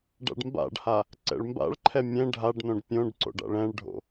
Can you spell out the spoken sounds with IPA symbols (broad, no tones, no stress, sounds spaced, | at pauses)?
ɖ a̰ ɖ m b a̰ ɖ h a | ǀ ɛ̰ ɭ m b a̰ ɭ ǃʰ ɛ mʲ ɛ̃ ɖʱ a ɖ n õ ɖ pʲ õ ɖ ǀ o̰ ɖ a̰ ɭ ɛ̃ ɭ ɖʱ o̰